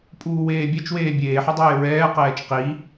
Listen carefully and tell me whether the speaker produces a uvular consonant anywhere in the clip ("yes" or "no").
yes